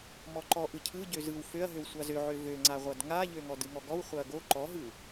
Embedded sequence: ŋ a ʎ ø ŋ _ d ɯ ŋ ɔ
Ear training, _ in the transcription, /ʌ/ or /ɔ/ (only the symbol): ɔ